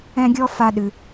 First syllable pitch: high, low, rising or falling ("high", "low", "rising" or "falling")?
high